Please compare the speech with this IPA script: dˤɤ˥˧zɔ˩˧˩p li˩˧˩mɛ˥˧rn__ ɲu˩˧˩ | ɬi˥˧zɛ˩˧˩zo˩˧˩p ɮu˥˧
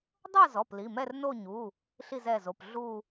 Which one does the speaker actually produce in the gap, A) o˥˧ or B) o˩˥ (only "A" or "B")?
A